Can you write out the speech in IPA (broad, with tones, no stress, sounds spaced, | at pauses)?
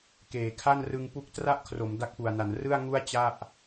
k eː˩˦ kʰ a˥˩ n r ɯ˧ ŋ p u˦˥ k̚ t r a˥˩ ʔ kʰ r o˩˦ m d a˦˥ k̚ p u˨˩ a̯ n a˩˦ n r ɯ˥˩ a̯ ŋ u˥˩ a̯ t͡ɕ a˥˩ ʔ